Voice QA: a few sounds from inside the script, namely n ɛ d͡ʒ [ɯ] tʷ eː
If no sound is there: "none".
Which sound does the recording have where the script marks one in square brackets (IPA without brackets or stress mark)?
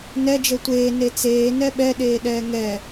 ə